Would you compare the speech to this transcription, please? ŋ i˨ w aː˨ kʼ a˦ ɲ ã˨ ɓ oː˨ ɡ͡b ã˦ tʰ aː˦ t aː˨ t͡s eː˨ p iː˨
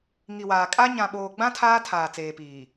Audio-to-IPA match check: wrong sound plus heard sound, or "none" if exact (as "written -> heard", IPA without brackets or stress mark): t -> tʰ